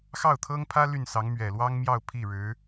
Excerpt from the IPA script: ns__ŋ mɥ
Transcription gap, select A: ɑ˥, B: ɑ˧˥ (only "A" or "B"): B